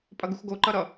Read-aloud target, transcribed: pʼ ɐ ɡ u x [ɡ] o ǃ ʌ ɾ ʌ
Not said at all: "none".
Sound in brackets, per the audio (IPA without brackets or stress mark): ɡ